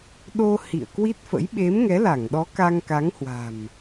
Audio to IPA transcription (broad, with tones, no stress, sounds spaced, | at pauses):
ɗ o˧ h ḭ˧˨ ə̯ k w i˦˥ t̚ f ə̰˧˥ j ɓ e˨˦ m ŋ ɛ˨˦ l a˧˩ ŋ ɗ ɔ˨˦ k a˧ ŋ k a˨˦ ŋ h w a̤˨˩ m